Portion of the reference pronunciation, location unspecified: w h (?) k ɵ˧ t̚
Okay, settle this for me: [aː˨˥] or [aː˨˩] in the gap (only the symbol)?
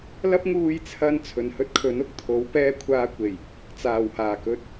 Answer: aː˨˩